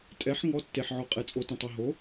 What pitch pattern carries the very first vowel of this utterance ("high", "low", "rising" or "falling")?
rising